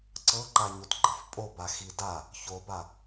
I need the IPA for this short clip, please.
ǀɤǃaɲot ɡ͡ǃɤfpʼoba xida | çoba

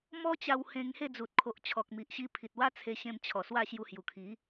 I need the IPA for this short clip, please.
mɔ˦t͡ɕa˧w hẽ˧ŋhe˥˧d͡zu˨t̚ kʰo˨ʔt͡ɕʰɔ˨k̚mi˨ʔɕi˧ pʰi˨t̚wa˦ t͡sʰe˧ɕẽ˧mt͡ɕʰɔ˨˩ swa˥˧ɕju˧ hju˨˩kʰi˨˦

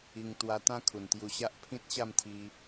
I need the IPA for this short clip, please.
i˧ŋ t̪wa˧ t̪ã˦kʰu˨˩nt̪ju˧ɕa˦ʔ pʰĩ˦t̚ɕa˥˧mt̪ʰi˧

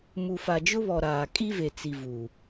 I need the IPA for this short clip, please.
mu˨fa˨d͡ʒʊ˦βɔ˨ ɾaː˨kʼi˦ve˨t͡si˨ vu˨

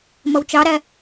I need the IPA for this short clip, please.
mʌwt͡ʃɑɾæ

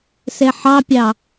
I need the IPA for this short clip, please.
sɛħɑpʲɑ

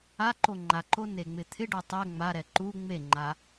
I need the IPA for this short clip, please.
a ǃoŋ͡ǃaǃo neŋ͡mɪt̪ʰɪɖo tˤɛ ŋ͡maɾɛ ǃu ŋ͡meŋ͡ǃa

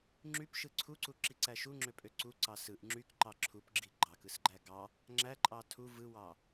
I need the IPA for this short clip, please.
ŋ͡ǁypʃɯ ǀʰuǀuǁiǀæ ʃuŋ͡ǁøpʼø ǀuǀɑ sɯʔ ŋ͡ǁykǃɑ ǁʰupɡ͡ǁi ɡ͡ǃɑkɯsɡ͡ǃæ ɡɑ | ŋ͡ǁæǃʼɑ tʰu vɯwɑ

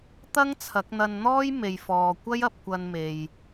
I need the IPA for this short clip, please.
t̪ɐ˥ŋt͡sʰɐ˨˥k̚n̪ɐ˧nn̪ɔː˥j me˨jfɔː˨kʷɐ˥j ɐ˧p̚kʷɐ˧nme˨j

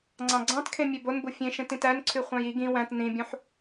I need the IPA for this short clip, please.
ŋ͡ǀɑ̃ɡ͡ǀɑ̃tkʰẽ mʲebonbu fʲẽʃẽtĩt ænǀʰy χʷɑ̃ji ɡĩ wæ̃t nĩbʲũħ

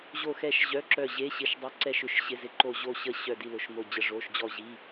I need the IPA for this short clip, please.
ʑo˦˨xɛ˦˨ʃʑœ˧˥˧ǁœ˦˨ ʑe˧˥˧ɕɪ˦˨ʃ dˤɪ˧˥˧ǀɛ˦˨ʃʏ˦˨ʃ ɕɪ˧˥˧zɪ˦˨ǃo˦˨ ʑo˦˨ɕə˦˨ ɕœ˦˨di˦˨lʊ˧˥˧ʃmo˦˨ d͡ʑə˦˨ʐo˧˥˧ʃ d͡ʑɔ˦˨ʑi˧˥˧

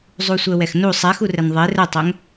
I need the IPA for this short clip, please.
zˤusʷɜwɛxnu sˤɛxurɛn ðˤe rətˤɛŋ

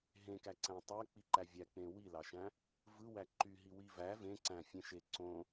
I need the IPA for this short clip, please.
ɦẽkæǀæ̃ tˤæk͡piǃæ vʲæk͡pẽ wilɑʃæ̃ | vɯwæ ǃyɦiwi væ vẽǀæ̃fʲẽʃe ǀõ

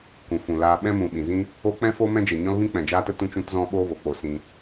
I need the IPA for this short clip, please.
kũ˨fũ˨laː˧ ɓɛ̃˦mũ˨ɓĩ˨zĩ˦ | o˧ k͡pɛ̃˦ fo˦ mɛ̃˦d͡ʒe˨ɲɔ̃˦lvĩ˦ k͡pɛ̃˨d͡ʒaː˦tə˦ tũ˧t͡ʃũ˧tzɔ̃˧ɓoː˧ vo˨k͡po˧sĩ˧

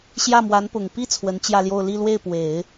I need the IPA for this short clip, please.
ɕjä˥˩mwa˧˥npʊ˨˩ŋ pi˥˩ t͡sʰwə˧˥nt͡ɕjä˥˧ljo˥˧ʊ̯ li˥˧lwe˥˩ɪ̯pwe˨˩˦ɪ̯

